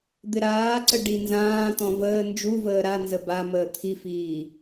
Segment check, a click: present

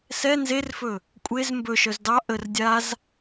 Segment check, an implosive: absent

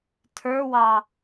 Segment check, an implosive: absent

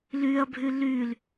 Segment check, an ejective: absent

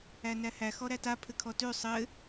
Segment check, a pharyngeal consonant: absent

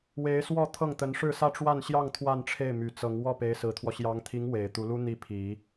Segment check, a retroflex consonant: present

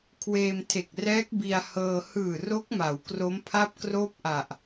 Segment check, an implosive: absent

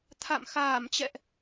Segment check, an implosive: absent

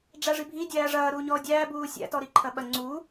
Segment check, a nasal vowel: absent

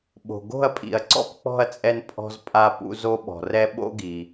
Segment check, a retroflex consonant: absent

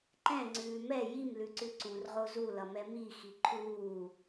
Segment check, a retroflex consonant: absent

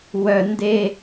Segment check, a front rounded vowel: present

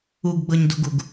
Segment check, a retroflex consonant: absent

